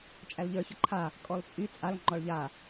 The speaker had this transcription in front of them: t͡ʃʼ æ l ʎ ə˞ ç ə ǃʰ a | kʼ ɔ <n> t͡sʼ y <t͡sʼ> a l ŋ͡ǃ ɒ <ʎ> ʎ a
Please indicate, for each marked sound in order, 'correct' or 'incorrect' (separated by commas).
incorrect, correct, incorrect